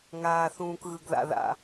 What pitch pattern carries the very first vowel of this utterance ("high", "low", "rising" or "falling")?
low